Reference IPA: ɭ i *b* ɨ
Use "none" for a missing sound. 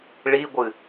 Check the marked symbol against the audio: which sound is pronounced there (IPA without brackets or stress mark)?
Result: ɡʷ